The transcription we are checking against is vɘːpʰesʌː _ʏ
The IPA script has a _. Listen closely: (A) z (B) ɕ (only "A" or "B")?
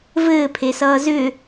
A